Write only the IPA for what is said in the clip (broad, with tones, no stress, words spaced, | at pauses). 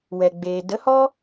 wɛ˨ɡ͡beː˨ də˨˦hɔ˦